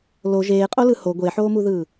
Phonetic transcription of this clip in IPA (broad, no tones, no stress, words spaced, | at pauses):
lo ʒeːqʼolɯ ho ɡʷeħoːmuðɯː